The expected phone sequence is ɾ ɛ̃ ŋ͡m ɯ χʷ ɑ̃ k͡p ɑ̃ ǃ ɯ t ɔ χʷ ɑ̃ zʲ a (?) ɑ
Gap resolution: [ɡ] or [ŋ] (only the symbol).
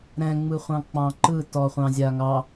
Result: ŋ